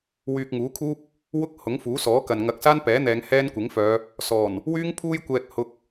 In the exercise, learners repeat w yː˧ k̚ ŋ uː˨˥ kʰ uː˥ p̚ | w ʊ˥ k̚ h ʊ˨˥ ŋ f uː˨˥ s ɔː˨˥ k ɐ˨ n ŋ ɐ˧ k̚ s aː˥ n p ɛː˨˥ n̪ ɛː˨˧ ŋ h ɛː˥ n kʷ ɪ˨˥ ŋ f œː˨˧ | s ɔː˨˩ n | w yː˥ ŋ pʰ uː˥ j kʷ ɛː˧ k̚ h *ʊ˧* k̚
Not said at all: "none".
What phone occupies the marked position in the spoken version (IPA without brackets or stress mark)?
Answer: ʊ˧